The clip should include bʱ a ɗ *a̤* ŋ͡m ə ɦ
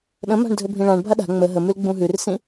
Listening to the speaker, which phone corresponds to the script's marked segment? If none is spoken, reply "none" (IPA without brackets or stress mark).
a̤